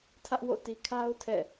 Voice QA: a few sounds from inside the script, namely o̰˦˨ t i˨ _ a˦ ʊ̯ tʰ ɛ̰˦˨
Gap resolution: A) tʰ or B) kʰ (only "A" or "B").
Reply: B